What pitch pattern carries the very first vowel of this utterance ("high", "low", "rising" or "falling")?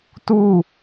falling